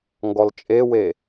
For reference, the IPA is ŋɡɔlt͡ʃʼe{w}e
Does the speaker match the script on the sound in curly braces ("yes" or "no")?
yes